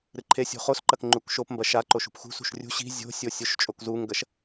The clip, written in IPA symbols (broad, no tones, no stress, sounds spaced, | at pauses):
ɾ ɨ ǃʰ e sʲ o̤ χ o s ǃ ɐ k ŋ͡ǃ u k ʃ o p m b ɐ ʃ a ǃ o ʃ ṳ p x ṳ s ṳ ʃ rʲ ṳ ɕ i̤ zʲ o̤ sʲ o sʲ o ʃ t͡ʃʼ o k z u ŋ ɡ ɐ ʃ